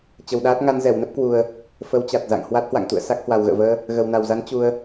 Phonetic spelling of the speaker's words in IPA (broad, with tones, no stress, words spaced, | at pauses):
t͡ɕə˨˩wɗaː˦˥t̚ ŋa˧nzɛ˧˩wnə˦˥p̚kwu˨˩ə̯ | fə˨˦wt͡ɕa˨˩t̚za̰˧˨ŋ hwa˦˥t̚hwa̰˧˨ŋt̪ṵ˧˨ə̯ sa˦˥k̚hwa˨˩wɣə̰ː˧˨vəː˧ | ɣə˨˩wna˨˩wza˨˦n t͡ɕu˧ə̯